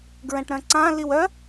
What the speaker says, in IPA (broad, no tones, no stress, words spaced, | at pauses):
ɡɹɛ̃ʈɾœ̃ǀã liwœ